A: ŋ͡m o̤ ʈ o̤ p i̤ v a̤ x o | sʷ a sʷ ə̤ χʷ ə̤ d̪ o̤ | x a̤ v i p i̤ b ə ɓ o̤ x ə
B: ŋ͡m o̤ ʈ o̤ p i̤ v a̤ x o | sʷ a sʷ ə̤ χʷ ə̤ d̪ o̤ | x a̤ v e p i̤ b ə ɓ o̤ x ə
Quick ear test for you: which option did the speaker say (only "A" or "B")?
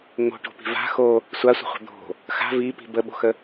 A